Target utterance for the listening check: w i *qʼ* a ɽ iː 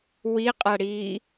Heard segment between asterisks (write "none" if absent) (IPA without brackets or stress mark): qʼ